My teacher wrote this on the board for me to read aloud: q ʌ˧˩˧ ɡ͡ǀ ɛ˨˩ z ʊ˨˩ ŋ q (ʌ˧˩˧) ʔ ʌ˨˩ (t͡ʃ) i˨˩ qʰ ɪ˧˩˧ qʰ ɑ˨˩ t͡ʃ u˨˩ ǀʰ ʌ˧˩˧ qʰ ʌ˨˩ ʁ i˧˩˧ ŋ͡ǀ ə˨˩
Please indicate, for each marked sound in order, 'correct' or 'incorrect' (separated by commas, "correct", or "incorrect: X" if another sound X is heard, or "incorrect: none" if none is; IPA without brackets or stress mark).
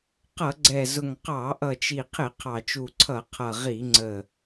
incorrect: ɑ˧˩˧, correct